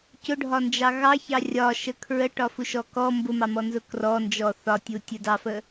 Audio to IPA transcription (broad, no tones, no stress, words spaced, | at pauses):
cʊɖʱɒnd͡ʒɑ ɣɑçɑ rʲɒʃə kʰɹəʈɒfuʃɔ kɔ mbʊmɑmɔnzʊ krɔnd͡ʒɔ θɒtʲu tʲədɑfə